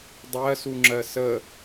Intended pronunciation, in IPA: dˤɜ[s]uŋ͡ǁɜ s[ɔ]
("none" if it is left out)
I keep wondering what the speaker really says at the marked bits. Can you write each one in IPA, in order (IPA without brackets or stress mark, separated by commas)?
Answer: s, ə